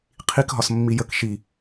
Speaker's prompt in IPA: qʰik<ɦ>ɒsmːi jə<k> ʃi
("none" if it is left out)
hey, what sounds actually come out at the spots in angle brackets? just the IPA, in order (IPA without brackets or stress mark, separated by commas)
ɦ, k